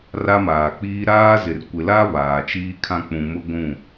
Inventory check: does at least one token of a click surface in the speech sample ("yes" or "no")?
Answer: no